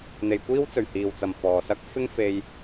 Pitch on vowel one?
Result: low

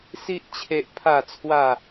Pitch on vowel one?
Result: high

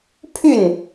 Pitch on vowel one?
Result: falling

